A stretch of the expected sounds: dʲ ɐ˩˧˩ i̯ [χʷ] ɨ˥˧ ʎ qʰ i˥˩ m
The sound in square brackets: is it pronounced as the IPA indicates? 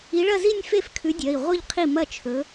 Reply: no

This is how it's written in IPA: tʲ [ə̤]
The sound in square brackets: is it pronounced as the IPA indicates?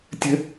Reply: yes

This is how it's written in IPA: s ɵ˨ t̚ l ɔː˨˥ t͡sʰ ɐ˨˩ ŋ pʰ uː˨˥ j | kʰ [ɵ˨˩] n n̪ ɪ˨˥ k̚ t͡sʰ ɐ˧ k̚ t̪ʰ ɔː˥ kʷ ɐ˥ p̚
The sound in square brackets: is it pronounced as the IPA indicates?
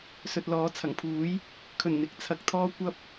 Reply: yes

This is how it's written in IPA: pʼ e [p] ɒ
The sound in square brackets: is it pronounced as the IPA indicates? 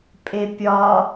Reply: no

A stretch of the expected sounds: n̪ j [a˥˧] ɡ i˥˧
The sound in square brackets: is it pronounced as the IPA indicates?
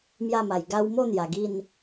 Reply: no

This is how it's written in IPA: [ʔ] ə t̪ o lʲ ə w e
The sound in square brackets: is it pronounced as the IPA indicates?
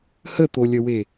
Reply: no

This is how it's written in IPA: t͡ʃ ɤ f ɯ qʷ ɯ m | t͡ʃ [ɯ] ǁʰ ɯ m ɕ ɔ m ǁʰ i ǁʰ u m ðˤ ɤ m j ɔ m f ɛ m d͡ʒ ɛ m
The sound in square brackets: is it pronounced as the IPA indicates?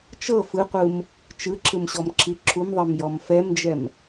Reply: yes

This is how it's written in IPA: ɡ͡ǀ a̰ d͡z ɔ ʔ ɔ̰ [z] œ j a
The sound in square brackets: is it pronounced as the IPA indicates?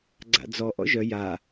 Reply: no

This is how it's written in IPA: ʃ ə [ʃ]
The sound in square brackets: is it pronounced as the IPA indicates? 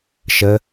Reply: no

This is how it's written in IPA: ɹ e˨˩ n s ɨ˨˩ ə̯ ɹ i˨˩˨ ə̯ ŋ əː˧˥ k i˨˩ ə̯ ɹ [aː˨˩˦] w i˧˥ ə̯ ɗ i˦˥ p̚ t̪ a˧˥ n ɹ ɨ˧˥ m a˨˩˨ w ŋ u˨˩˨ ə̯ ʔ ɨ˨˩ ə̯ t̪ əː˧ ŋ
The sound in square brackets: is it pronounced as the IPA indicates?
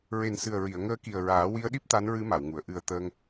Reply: yes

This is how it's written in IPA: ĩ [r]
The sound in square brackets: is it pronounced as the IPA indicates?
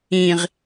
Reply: no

